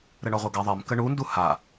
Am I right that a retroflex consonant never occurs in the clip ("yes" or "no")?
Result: no